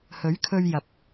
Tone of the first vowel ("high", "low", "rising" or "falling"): rising